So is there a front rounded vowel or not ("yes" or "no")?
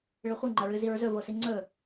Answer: no